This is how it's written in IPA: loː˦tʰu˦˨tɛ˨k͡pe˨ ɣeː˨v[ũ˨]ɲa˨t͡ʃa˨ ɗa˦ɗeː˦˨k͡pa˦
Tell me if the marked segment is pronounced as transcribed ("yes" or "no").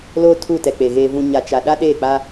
yes